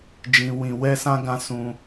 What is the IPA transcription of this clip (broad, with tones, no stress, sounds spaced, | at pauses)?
d͡ʒ ĩ˧ w ĩ˧ w ɛ˦ s ã˦ ɡ ã˦ s ũ˧